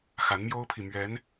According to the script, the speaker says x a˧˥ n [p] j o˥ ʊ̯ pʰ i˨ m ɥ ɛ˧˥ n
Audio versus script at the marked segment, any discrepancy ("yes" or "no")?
yes